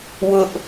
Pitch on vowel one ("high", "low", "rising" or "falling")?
high